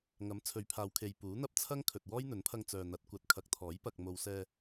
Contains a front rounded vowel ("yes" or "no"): yes